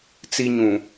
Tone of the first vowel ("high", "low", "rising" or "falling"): high